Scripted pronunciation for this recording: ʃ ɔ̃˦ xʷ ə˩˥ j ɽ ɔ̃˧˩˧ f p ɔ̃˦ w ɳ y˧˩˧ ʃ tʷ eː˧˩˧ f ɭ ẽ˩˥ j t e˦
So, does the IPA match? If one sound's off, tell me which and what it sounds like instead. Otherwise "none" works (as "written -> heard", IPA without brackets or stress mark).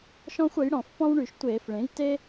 none